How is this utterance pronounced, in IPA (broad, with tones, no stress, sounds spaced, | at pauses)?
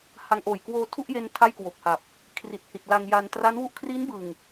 h a˧ ŋ ʔ oː˨˩ j k w oː˧ tʰ u˥˩ ʔ j e˧ n tʰ a˥˩ j k w o˨˩ k̚ h a˨˩ p̚ | kʰ r i˨˩ t̚ h i˨˩ t̚ l a˧ ŋ j a˧ n t r a˦˥ n w u˥˩ ʔ kʰ r i˦˥ n b ɯ˨˩ ŋ